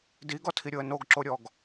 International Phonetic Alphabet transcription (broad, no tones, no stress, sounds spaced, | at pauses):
d i ɡ ɔ tʰ i ɾʲ o ə̯ n o ɡ ǁ o ɾʲ ɔ ɡ